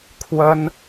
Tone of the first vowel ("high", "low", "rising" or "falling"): high